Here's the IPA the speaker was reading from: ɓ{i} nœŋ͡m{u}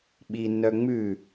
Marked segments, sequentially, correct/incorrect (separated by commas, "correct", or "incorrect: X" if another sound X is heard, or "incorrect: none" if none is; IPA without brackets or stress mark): correct, incorrect: ʉ